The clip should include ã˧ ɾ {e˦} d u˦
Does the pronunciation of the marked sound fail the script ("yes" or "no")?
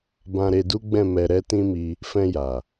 yes